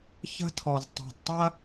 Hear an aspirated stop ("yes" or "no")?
yes